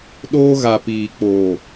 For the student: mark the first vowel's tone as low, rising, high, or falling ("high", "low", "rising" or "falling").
high